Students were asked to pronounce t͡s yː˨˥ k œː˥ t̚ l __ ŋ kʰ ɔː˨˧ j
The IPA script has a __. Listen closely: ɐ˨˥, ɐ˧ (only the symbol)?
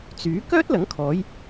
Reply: ɐ˨˥